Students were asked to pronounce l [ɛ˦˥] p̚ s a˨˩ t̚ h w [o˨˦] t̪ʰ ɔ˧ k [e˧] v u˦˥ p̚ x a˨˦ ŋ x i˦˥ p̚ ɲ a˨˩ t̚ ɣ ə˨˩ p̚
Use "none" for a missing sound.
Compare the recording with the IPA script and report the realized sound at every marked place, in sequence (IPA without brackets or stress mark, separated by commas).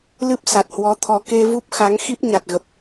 ɨ˦˥, ɔ˨˦, e˧